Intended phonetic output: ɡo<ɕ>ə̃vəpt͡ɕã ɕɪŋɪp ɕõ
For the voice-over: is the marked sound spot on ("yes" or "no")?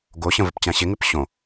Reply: yes